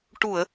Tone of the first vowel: low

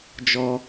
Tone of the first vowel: high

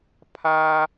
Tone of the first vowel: high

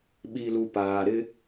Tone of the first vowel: low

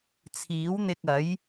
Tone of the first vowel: rising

